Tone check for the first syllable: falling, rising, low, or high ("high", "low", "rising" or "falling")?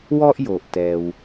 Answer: high